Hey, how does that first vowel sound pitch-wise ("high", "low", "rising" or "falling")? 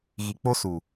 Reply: low